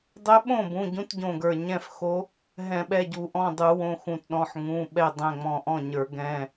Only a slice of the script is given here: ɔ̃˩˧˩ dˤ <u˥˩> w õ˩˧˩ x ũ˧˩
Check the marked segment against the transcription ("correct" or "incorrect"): incorrect